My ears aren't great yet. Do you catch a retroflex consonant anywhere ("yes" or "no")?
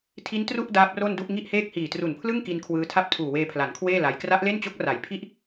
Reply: no